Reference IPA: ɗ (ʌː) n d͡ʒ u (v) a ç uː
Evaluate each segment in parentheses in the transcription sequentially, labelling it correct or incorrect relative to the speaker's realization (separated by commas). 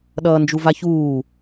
correct, correct